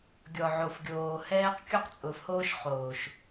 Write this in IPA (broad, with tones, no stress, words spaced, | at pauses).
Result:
ɡʲɔ˨ ʕo˨fɡʲoː˨ hɛː˦q kʲu˦qt͡sʼʊː˨fhoː˦ʃ χoː˨ʃ